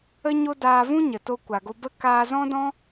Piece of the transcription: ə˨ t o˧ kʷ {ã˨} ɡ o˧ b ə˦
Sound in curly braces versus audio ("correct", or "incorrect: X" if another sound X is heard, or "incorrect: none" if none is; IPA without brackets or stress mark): incorrect: a˨